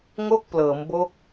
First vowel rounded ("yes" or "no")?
yes